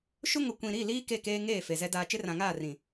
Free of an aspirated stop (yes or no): yes